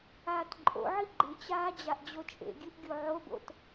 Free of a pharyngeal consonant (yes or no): no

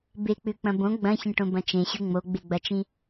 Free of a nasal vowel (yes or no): no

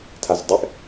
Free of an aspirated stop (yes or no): no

